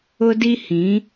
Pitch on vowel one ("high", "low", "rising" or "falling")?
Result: high